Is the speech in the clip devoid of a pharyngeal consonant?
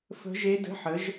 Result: no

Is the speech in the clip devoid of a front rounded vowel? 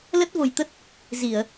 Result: yes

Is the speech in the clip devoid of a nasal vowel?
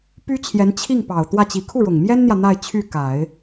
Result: yes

